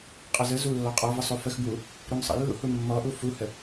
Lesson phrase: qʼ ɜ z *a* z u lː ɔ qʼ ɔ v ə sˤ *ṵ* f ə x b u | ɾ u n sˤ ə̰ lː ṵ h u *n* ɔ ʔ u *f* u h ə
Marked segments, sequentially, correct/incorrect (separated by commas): incorrect, incorrect, incorrect, correct